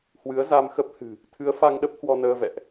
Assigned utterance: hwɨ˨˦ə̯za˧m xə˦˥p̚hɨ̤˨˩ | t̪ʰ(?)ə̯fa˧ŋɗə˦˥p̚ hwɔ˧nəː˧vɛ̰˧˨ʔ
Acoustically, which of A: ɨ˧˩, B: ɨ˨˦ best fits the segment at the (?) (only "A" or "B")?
B